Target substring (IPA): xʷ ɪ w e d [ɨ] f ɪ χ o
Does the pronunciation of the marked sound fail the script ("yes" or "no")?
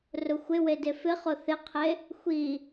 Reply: yes